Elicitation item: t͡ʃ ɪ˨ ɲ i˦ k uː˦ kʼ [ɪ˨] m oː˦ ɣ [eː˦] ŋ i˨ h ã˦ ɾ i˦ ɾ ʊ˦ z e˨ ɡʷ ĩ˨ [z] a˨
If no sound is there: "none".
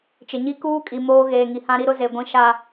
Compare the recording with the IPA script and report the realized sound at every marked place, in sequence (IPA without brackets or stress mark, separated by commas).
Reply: i˨, eː˨, ʃ